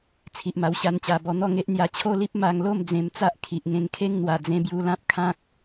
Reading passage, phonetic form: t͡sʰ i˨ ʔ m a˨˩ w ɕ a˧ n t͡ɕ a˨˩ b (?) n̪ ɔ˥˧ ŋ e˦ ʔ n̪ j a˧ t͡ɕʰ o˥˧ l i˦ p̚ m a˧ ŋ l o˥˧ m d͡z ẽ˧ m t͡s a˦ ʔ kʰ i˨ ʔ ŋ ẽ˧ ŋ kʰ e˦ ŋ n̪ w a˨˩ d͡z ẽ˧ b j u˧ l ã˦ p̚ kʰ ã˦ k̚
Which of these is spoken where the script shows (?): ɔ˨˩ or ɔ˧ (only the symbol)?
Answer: ɔ˧